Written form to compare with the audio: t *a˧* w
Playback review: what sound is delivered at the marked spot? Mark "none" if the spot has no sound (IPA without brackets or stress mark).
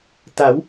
a˩˦